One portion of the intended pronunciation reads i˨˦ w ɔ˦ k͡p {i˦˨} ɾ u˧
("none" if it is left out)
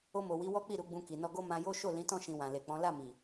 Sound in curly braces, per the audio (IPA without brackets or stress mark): i˦˨